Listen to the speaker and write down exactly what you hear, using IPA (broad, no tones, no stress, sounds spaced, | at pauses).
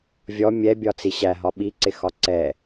vʲ ɔ mʲ ɛ bʲ ɒ t͡s i ɕ æ ɦ ɒ ɓ i ǀ ɪ x ɒ ǀ ɛ